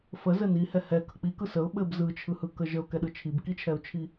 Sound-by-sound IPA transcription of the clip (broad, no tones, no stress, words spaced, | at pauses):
fəzɘ nihɛ hɛkə k͡pikɯ səʊ̯ ɓɘb zɯt͡ʃʰɯhɯkə ʒəʊ̯kɛɗɯ t͡ʃʰibkit͡ʃʰɛʊ̯t͡ʃʰi